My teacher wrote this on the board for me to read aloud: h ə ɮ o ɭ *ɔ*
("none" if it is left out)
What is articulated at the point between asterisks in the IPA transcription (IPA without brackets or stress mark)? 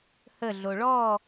ɔ